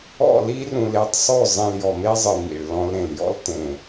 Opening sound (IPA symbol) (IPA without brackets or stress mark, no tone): ɔ̰